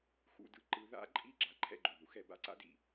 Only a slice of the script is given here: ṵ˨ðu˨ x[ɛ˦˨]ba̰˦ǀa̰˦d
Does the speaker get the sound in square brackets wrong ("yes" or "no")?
no